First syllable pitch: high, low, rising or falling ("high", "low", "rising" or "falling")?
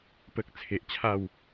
low